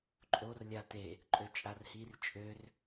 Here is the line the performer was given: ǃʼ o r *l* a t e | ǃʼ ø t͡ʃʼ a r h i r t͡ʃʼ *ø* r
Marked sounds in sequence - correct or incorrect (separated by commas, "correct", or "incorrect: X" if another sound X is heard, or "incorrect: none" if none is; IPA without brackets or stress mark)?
incorrect: lʲ, correct